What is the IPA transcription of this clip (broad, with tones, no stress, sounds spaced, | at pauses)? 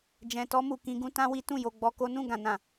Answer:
d͡ʒ ɛ̃˨ t ɔ˧ m u˨ k ĩ˧ ɡ ũ˦ t ã˦ w i˦ t ũ˦˨ j o˧ ɡ͡b ɔ˧ k o˦ n ũ˦˨ ɡ ã˨ n ã˨